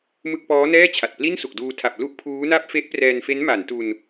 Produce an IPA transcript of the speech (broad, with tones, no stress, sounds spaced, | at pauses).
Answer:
m ɯ˥˩ k̚ p ɔː˦˥ n ɛː˥˩ t͡ɕʰ a˨˩ t̚ p l i˥˩ n s u˨˩ k̚ d uː˧ tʰ a˨˩ p̚ l u˥˩ ʔ pʰ uː˦˥ n a˥˩ p̚ f e˦˥ ʔ p r ɛː˧ n f e˦˥ n m a˩˦ n t u˧ n